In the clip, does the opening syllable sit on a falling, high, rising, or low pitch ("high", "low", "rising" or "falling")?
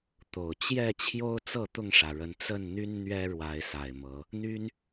low